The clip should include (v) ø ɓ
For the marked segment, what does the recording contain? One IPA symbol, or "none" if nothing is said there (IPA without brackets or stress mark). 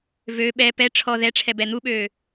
v